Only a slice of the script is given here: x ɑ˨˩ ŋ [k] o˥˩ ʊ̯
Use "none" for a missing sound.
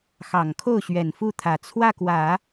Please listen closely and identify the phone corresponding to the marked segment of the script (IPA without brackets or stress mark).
kʰ